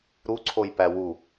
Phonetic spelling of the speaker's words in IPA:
ɾ u ǀʰ o j p æ w u

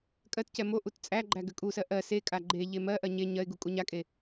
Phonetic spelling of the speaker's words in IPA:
kʼ ɜ t c ɛ m o ʔ u t t͡sʼ æ ɡ͡ǃ æ ɡ ʏ kʼ u s ɜ ʔ ɜ s e kʼ a ɡ͡ǃ e ʎ e m ɜ ʔ ɜ ɲ e ɲ ɜ ɪ̯ ɡ u kʼ u ɲ a kʼ e

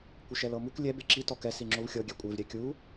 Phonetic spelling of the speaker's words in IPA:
kʷ e ʃ ɛ l ɤ m u k lʲ ɛ b e ǁ i t ɔ k ɛ s i ŋ͡ǁ o v xʲ ɤ ɡʲ ɛ kʷʼ e v ɾʲ ɛ kʲ u

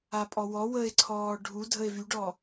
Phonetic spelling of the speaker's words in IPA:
a pʼ ɔ w ɔ w ə e̯ ǀʰ ɔː ɖʱ u dʱ ə e̯ v y ɖ ɔ

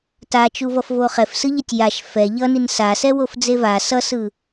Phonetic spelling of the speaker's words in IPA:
t a t͡ʃ u v ʌ f v o χ ɛ f s ɯ ʎ ɛ tʲ j a ʃ f ɛ ʎ ʌ n i n s a s ɛ w o f d͡z e v a s ʌ s ɯ

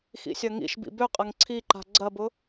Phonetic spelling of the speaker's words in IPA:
x ḭ sʲ ɐ ŋ ḭ ʃ b ḭ b ø qʼ ɐ ŋ ǀʰ i ǃ a̤ ɡ͡ǀ ɐ b ʊ

